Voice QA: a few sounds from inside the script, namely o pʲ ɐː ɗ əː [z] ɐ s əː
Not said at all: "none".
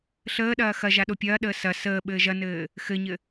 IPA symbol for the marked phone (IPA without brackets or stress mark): s